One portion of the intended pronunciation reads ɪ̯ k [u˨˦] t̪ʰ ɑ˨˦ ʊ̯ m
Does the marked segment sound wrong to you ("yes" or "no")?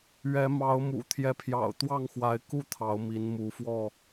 yes